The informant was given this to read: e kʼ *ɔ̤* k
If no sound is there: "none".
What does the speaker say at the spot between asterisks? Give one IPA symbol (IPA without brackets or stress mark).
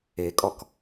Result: ɔ